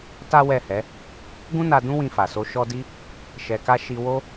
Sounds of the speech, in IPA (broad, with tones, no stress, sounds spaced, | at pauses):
t a˦ w ɛ˦˨ h ɛ˨˦ | ɡ ũ˦ n a˧ d ũ˦ w ĩ˧ f a˨ s o˧ ʃ ɔ˧ d i˦ | ʃ ɛ˨ k a˧ ʃ i˧ w o˦